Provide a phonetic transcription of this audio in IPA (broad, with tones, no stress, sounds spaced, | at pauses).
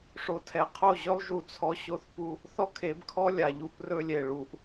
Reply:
ʂ o˨ tʰ ɛ˨ qʰ o˦˨ ʑ ɵ˦ lˠ ʒ u˧ t͡sʰ ɔ˧ ɕ o˧ θ p u˧ | θ ɔ˦ kʰ e˨˦ b kʰ ɔ˦ lʲ a˨ ʎ u˧ p r ɵ˧ lʲ e˨ ɭ u˨ ʔ